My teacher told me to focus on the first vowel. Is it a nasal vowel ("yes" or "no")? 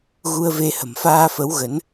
no